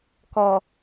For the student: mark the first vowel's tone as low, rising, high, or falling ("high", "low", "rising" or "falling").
low